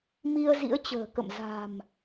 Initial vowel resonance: oral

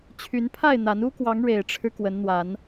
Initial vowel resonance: oral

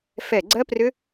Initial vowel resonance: oral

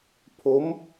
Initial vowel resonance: oral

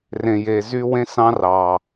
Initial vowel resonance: nasal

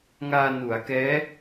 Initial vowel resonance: oral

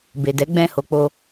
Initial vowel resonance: oral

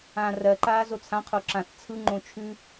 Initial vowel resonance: nasal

